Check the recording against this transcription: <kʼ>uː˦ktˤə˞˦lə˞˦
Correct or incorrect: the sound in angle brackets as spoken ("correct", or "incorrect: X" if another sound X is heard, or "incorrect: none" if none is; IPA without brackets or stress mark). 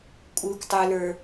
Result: correct